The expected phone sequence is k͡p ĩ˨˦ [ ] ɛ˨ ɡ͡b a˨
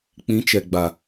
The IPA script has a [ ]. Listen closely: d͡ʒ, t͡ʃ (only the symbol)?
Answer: t͡ʃ